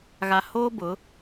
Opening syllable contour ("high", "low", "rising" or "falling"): low